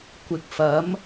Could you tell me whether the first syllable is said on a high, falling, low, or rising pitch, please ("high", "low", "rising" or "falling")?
low